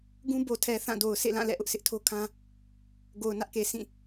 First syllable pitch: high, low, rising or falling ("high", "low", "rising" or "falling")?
high